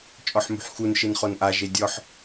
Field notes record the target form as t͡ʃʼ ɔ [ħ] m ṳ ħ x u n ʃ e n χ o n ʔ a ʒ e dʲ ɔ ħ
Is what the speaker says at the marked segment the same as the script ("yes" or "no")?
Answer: yes